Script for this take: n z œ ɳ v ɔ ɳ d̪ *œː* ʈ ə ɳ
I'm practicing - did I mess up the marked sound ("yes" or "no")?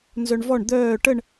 no